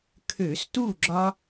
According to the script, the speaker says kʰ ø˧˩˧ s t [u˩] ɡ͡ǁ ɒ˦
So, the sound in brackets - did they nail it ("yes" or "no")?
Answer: no